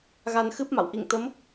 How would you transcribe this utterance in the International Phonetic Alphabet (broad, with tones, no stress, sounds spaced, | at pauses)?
ɣ a˧ n x ɨ˦˥ p̚ m a̰˧˨ w ʔ ḭ˧˨ ŋ t̪ ə˨˦ m